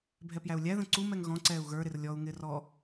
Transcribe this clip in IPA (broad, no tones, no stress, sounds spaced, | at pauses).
bʱ ɛ p j æ u̯ lʲ æ ð ə̃ ǀ u m ɛ ŋ ɣ ɔ̃ ǀ ɛː u̯ ɣ ə˞ ɾ ɪ r lʲ ɔ u̯ ŋ ɪː r ɔ